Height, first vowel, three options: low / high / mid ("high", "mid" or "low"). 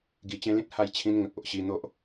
high